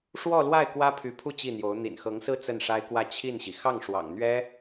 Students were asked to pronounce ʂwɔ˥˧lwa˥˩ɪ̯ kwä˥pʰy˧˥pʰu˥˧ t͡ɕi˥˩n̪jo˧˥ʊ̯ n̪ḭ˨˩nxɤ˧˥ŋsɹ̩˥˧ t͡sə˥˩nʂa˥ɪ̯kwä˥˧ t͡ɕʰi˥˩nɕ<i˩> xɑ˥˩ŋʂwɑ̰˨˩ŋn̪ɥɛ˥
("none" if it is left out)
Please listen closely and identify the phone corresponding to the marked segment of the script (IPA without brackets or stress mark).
i˩